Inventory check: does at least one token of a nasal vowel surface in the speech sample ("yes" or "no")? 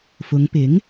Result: no